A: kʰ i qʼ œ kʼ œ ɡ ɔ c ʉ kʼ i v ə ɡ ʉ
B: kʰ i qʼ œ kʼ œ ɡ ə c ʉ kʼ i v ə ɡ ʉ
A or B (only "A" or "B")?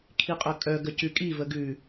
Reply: B